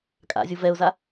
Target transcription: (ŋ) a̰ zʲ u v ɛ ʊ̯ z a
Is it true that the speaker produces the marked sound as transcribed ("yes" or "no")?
no